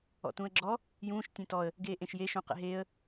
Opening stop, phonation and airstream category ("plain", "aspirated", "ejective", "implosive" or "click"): plain